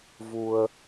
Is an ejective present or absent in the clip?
absent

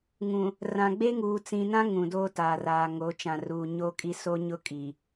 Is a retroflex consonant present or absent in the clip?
absent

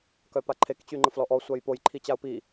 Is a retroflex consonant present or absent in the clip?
absent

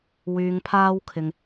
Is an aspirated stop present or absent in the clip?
present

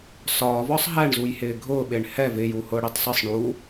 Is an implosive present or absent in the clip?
present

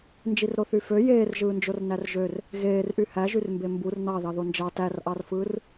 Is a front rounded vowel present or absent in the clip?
present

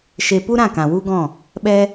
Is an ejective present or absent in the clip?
absent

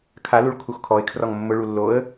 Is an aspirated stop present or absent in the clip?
present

